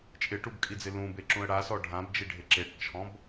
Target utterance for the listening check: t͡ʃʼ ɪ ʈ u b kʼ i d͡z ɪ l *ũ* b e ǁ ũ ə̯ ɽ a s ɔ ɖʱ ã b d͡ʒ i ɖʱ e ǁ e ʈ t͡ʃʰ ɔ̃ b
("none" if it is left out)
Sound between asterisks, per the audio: ũ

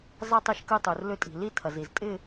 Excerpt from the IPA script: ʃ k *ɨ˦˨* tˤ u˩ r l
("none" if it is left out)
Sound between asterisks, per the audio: ɨ˦˨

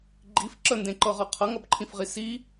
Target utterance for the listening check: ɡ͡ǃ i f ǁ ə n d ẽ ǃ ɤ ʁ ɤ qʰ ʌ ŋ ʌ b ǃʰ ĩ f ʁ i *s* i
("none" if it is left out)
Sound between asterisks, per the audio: s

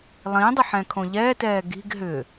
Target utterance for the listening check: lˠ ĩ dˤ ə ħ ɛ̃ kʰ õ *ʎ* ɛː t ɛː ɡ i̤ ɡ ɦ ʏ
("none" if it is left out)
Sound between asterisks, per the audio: ʎ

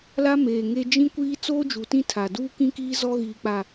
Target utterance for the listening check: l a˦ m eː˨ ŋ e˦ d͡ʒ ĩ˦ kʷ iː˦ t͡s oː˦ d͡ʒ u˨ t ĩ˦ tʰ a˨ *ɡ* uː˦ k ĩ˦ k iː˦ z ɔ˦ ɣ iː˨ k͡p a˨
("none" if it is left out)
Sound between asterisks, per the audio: d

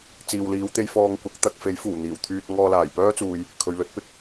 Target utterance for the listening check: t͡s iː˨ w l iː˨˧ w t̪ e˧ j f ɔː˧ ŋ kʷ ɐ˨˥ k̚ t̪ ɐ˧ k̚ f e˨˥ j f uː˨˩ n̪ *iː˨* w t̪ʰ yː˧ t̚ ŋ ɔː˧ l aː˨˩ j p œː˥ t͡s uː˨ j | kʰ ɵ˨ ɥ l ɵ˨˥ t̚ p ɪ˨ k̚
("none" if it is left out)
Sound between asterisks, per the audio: iː˨˩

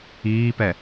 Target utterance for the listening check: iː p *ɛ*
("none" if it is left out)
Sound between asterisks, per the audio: ɛ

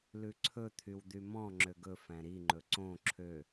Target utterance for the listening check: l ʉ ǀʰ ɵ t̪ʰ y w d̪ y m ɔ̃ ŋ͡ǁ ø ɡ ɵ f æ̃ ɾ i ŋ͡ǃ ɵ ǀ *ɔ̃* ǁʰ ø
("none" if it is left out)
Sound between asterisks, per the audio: õ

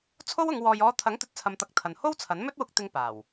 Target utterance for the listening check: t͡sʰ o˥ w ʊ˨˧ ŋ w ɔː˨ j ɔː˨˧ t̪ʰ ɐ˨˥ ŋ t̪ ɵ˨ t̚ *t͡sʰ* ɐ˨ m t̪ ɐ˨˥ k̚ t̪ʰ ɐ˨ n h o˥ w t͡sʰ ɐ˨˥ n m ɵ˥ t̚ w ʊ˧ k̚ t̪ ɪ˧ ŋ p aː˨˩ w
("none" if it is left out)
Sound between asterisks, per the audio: t͡sʰ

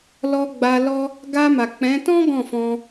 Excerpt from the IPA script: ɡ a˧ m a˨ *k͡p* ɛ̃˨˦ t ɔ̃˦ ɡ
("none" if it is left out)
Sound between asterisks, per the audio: k͡p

